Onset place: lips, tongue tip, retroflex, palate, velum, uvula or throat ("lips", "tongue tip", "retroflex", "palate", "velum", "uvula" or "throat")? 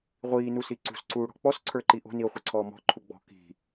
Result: uvula